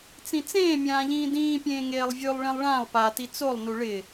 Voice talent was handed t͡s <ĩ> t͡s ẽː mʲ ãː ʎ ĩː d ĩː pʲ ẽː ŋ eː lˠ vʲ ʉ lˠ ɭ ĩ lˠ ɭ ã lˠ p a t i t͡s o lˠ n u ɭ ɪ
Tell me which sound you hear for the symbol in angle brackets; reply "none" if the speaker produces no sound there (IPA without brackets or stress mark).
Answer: ĩ